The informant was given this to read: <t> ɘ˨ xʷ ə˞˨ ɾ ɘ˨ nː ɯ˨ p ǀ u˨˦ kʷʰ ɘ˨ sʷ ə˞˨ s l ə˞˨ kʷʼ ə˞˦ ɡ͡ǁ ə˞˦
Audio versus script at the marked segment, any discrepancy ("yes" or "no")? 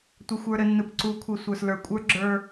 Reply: yes